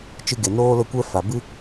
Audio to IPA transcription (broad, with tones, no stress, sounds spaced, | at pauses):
t͡ʃ ɨ˧ ɡ e˨ n oː˦ l ə˦˨ kʷ ɛ˦ f a˨ b ɨ˦